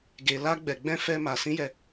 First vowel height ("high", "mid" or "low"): mid